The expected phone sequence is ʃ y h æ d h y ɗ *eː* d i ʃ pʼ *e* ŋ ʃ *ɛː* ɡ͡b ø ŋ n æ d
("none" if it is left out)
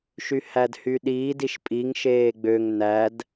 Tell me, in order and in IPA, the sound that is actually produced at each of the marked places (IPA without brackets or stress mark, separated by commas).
iː, i, eː